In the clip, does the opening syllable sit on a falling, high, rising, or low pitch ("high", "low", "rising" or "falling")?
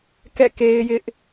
falling